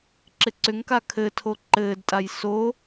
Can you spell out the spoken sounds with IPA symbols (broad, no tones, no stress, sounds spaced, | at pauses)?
ǁ ɪ ǀ ʏ ŋ k a kʰ ɘ tʰ o ǃ ɘː d tʼ a j s o